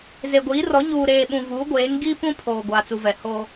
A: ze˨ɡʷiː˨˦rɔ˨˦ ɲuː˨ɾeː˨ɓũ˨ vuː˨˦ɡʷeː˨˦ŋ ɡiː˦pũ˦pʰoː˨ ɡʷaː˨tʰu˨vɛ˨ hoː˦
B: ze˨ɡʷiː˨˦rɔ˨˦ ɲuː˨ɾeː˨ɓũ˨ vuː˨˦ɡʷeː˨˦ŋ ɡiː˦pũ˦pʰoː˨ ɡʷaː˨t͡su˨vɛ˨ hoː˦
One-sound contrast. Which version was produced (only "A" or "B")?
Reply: B